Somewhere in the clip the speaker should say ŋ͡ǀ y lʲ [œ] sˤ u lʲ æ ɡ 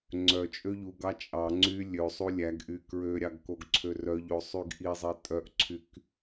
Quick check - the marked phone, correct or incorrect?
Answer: incorrect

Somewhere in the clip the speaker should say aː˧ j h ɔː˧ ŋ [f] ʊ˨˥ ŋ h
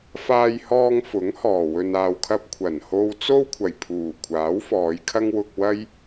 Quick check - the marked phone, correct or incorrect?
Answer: correct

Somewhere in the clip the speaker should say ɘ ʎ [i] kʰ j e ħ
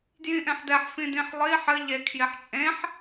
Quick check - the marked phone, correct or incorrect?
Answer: incorrect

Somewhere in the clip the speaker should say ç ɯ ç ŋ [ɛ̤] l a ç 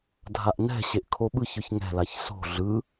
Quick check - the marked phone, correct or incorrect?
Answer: correct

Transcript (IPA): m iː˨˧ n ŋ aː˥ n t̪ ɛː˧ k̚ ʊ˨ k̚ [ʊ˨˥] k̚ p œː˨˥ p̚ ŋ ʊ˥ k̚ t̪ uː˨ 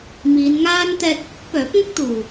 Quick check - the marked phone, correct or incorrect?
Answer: correct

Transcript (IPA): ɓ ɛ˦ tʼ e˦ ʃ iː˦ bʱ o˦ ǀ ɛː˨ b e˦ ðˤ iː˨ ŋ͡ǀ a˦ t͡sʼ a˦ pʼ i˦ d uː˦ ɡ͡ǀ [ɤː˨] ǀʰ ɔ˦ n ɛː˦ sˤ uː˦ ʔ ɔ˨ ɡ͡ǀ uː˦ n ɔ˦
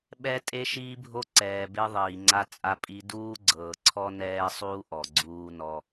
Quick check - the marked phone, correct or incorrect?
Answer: correct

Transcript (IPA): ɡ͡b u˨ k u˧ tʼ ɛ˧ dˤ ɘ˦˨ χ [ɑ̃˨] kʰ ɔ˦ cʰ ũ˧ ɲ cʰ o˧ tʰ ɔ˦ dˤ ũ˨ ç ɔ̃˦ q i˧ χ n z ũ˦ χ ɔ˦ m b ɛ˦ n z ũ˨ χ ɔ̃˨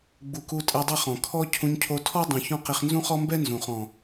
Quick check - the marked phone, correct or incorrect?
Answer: incorrect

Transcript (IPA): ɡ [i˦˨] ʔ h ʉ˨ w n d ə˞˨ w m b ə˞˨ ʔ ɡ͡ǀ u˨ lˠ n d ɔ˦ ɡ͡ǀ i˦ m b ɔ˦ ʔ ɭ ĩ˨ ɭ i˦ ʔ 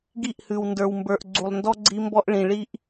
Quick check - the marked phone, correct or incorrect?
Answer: correct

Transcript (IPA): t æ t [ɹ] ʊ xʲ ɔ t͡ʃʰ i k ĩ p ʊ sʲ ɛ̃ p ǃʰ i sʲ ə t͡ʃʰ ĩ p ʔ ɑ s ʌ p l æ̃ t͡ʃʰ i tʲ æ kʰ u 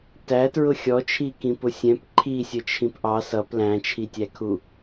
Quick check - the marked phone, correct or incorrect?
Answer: correct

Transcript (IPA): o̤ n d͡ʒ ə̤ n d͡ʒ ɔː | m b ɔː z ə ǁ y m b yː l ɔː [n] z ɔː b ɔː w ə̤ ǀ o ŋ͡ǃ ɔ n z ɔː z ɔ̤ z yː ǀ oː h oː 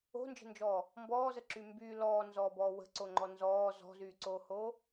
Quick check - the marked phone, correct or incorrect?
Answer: correct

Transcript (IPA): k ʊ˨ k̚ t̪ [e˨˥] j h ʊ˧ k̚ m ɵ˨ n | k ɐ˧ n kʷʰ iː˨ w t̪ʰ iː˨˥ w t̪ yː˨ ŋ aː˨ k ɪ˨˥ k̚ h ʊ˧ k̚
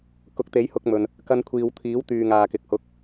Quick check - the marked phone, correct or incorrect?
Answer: correct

